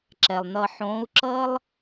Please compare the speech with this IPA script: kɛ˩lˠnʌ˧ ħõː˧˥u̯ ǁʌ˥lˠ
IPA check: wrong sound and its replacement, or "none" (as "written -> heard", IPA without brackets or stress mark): k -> ǁ